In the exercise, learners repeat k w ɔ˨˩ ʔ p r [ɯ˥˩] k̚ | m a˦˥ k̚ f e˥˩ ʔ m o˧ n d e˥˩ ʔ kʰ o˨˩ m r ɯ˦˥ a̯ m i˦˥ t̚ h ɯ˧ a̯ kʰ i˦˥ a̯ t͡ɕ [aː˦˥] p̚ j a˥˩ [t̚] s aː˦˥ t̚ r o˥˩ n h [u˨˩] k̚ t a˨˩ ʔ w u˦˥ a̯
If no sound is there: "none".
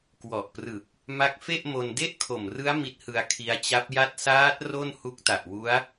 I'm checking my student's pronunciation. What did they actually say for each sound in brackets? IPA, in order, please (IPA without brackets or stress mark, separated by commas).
ɯ˨˩, a˦˥, t̚, u˦˥